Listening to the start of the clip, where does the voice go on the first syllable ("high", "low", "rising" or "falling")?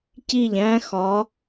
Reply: falling